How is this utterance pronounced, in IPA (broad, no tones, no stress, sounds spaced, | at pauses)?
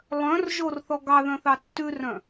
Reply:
lˠ œ̃ r ʒ o r θ ɔ ɡ ɑ ð œ̃ θ ɑ tː ʉ r œ̃